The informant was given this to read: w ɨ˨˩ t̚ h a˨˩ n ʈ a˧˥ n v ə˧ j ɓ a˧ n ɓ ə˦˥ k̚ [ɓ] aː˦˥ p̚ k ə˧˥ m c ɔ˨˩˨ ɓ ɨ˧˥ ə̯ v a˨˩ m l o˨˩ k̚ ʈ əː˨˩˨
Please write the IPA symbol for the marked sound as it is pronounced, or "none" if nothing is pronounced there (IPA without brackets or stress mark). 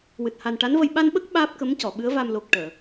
ɓ